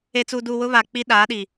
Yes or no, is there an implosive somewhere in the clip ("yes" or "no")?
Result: yes